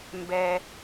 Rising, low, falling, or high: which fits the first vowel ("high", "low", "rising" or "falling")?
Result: high